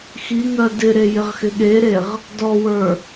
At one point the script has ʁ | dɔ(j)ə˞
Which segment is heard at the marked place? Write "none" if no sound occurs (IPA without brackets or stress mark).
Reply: w